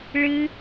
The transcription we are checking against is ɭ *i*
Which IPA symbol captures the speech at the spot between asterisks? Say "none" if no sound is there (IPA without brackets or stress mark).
ɨ